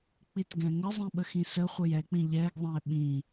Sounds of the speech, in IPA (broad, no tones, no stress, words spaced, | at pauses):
k͡pitɡɛ̃ŋəzˤĩ ɓəxĩsəχʷəj ɛk͡pĩ ʎɛɡðˤɛ̃e̯ ɓĩ